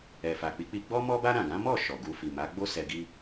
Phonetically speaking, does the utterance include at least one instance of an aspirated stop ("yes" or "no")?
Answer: no